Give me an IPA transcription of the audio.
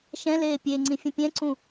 ʃ ɛ̃ l eː pʲ e ŋ͡ǀ ĩ fʲ ə̃ pʲ ɛ̃ ǀ ũ

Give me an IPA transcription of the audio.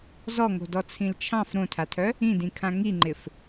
z ɔ ŋ o̤ d ɔ t͡sʰ ĩ l t͡ʃʰ ɑ̃ f ɾ õ tʰ a tʰ œ | ĩ d ĩ kʰ ã ŋ i ŋ͡ǃ ɪ f

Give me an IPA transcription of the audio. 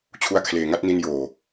t͡ɕʰ u˦˥ a̯ kʰ l eː˨˩ ŋ a˥˩ t̚ n i˧ n j oː˨˩

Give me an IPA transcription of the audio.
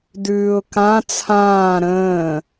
d ʉː ʊ̯ k ã t͡sʰ ãː ɾ ə̃ː

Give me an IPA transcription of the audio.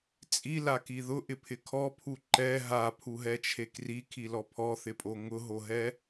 t͡sʼ i l a k i ð ʊ ʔ ɪ pʰ ɪ kʰ ɔ pʰ u ǃ ɛ ɦ a pʰ u ɦ ɛ t͡ʃʰ e k r i kʰ i l ɔ pʰ ɔ θ ɪ pʼ o ŋ ʊ ɦ o ɦ ɛ

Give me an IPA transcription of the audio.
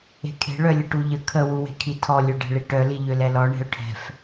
e̤ kʰ e̤ ɭ œ lʲ ə ʈ u ʎ ə kʰ ə w u w e̤ kʰ i tʰ ɔ lʲ ø ɖ ɛ̤ ɭ i ʈ œ l i ʎ ø l ɛ l ɔ ɳ e̤ ʊ̯ ʈʰ ɛ̤ f

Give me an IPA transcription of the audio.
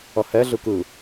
ʌ h ɛ ɮ ɯ k ɯ

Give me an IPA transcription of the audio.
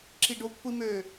ǁ i ɖ o kʷʰ i m ø

